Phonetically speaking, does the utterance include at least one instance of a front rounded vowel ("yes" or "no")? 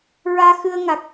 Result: no